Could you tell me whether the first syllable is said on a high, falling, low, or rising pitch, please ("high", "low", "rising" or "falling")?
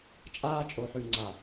high